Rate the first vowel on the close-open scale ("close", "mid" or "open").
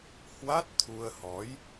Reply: open